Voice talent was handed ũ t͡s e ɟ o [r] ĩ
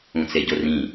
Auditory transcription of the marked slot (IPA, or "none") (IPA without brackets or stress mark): r